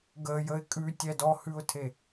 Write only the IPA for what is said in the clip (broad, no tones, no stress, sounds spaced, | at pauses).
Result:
ɡ ə j ə ɪ̯ kʼ ʉ tʲ ɛ d ɔ h ʉ ʊ̯ tʰ e